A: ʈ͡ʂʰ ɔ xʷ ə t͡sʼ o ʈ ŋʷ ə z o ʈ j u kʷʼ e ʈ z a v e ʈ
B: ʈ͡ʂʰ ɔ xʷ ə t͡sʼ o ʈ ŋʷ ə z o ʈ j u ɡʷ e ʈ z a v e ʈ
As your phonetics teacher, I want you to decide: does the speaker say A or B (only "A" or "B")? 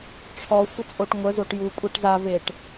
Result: A